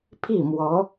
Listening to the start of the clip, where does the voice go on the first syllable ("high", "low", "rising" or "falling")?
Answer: falling